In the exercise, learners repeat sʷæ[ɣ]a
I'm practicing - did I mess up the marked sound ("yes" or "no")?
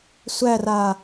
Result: yes